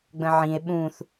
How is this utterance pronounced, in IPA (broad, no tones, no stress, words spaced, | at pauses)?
ɡ͡bə̃ʕĩe̯ ɓũθ